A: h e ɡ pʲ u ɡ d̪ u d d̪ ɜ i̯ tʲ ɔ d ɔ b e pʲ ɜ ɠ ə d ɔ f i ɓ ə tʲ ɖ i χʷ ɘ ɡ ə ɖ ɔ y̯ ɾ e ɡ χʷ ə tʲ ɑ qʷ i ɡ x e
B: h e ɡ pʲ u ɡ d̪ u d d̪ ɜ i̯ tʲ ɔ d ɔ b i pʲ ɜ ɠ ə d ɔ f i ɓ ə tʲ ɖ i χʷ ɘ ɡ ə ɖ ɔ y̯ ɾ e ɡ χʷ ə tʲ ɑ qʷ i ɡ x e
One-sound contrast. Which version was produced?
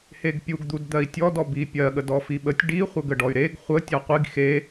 B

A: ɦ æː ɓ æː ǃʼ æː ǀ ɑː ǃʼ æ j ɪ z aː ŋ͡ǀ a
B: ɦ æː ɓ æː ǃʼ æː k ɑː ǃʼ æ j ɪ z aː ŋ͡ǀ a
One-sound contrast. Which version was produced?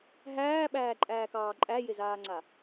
B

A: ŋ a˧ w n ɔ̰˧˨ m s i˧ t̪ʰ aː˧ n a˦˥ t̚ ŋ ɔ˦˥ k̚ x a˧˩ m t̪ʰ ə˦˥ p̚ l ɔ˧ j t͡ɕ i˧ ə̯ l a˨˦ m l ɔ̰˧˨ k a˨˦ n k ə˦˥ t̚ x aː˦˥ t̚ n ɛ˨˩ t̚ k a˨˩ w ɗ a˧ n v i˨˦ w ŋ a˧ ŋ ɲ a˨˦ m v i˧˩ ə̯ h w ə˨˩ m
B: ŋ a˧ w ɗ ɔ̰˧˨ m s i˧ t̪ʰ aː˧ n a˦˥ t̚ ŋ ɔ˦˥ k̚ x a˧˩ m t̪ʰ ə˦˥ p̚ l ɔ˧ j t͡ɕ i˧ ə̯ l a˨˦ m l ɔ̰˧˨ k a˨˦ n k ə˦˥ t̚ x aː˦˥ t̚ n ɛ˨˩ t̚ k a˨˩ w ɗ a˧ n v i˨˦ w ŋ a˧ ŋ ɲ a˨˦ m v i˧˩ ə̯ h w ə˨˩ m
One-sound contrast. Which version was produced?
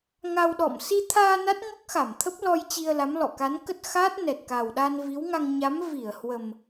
B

